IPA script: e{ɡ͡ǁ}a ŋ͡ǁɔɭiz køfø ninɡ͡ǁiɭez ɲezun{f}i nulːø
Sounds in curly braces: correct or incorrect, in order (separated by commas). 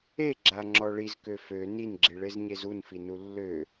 correct, correct